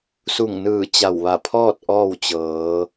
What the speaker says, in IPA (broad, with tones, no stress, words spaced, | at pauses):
su˧˩ŋnɯː˧˩ t͡ɕa˧˩w ʋa˧˩pʰɔː˥˨t̚ ʔɔː˥˨wt͡ɕɤː˩˧